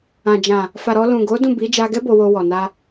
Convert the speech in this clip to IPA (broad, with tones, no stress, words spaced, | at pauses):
ã˨d͡ʒã˨ | fa˨ɾɔ˧ lũ˨ɡo˨˦ dũ˦˨bi˨˦ d͡ʒa˧ɡɛ˦ bo˧wo˧wɔ˨na˧